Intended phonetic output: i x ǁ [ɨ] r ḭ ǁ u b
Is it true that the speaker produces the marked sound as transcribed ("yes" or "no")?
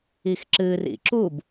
yes